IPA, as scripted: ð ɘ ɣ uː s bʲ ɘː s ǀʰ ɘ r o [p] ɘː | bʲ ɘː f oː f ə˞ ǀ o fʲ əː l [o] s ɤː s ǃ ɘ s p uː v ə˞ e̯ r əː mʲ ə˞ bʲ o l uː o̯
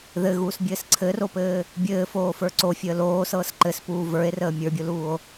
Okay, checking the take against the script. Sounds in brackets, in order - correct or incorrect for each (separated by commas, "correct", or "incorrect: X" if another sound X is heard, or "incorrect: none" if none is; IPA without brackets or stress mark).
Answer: correct, incorrect: oː